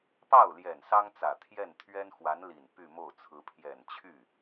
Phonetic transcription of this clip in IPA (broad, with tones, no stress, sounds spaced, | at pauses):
p ɑ˥˩ ʊ̯ l j ɛ˨˩ n s ɑ˥ ŋ t͡s ä˨˩ t̪ʰ j ɛ˥˩ n t̪ʰ ɥ ɛ˥ n x w a˧˥ n l i˨˩ n p y˥˧ m o˥˩ ʊ̯ t͡sʰ ɹ̩˧˥ pʰ j ɛ˨˩ n t͡ɕʰ y˥˩